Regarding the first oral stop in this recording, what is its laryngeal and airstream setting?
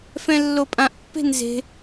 ejective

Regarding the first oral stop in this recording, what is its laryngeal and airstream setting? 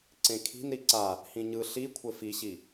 click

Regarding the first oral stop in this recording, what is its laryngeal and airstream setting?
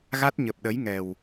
plain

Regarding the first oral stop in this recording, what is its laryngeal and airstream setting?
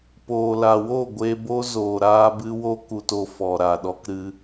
plain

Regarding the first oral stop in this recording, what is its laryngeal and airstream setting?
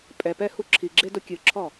ejective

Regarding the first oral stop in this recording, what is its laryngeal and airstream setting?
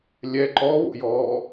click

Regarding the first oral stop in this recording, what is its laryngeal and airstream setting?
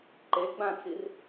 click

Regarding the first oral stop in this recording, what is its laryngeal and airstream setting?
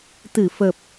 plain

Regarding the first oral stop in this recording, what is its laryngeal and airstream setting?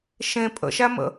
ejective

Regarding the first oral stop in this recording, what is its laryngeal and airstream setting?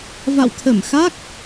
aspirated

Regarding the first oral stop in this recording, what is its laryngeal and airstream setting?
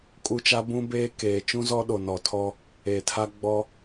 ejective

